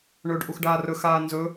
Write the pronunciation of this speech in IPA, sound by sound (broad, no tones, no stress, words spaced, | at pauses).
ɳɵːɖʔuxɖaːrɵ xaːnzɵ